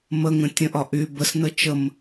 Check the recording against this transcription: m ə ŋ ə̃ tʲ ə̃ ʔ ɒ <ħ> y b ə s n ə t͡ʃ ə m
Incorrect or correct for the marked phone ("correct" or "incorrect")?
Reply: incorrect